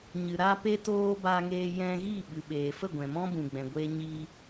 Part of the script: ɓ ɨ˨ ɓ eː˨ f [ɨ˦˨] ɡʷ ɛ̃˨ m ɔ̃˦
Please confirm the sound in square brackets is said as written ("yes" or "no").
no